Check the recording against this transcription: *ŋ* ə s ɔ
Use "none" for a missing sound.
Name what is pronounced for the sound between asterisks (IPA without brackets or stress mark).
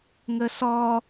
ŋ